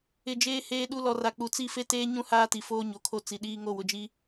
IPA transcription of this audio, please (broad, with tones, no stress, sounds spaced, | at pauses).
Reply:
ɪ˨ d͡ʒ eː˦ h eː˦ ɗ u˦ l ɔ˨ r a˨ k͡p u˨ t͡s i˦˨ f e˦ t eː˦ ɲ ũ˦ h aː˦ t i˨ f oː˦ ɲ o˨ kʰ o˦ t͡s i˨ ɗ iː˦ ŋ o˦˨ w ʊ˨ d͡ʒ i˦